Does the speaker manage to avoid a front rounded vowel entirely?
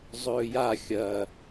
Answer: yes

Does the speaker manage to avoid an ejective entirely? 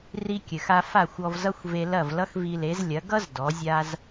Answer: yes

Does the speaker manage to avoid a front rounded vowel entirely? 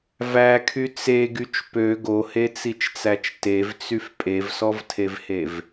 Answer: no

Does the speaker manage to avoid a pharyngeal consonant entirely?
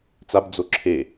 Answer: yes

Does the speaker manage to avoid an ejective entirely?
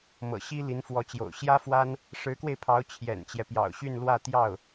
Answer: yes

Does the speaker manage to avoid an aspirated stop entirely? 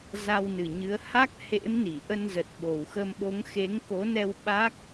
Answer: yes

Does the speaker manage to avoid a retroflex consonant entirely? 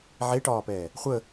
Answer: no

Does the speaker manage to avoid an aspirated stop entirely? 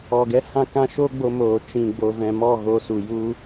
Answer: yes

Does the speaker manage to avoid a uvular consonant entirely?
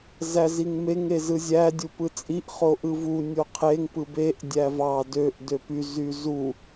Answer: no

